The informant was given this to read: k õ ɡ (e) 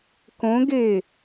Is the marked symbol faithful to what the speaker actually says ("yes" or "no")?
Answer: yes